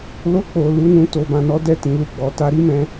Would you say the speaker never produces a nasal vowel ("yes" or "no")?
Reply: no